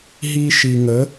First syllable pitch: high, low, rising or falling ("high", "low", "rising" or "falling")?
high